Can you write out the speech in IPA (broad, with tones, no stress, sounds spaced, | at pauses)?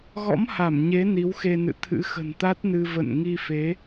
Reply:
ɣ ɔ̰˧˥ m h a˧˩ m ɲ e˨˦ n i˨˦ w x e˧ n ɨ̰˧˨ t̪ʰ ɨ̰˧˥ x ə̤˨˩ n t̪ a˦˥ t̚ n ɨ˧ v ə̰˧˨ n ŋ i˧ f e˨˦